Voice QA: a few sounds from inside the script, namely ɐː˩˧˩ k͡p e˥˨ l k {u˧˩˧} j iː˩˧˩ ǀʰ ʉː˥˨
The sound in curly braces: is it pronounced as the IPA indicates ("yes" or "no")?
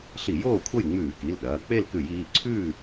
no